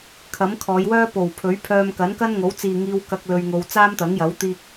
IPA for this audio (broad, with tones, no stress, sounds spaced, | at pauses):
kʰ ɐ˨˥ m kʰ ɔː˨˧ j w œː˥ p o˨˩ w pʰ ɵ˨˥ ɥ pʰ œː˧ m k ɐ˨˥ n k ɐ˥ n ŋ o˨˥ w t͡s iː˨ ŋ iː˧ w k ɐ˧ k̚ l ɵ˧ ɥ ŋ o˧ w t͡s aː˥ m t̪ ɐ˨˥ ŋ j ɐ˨˥ w t̪ iː˥ k̚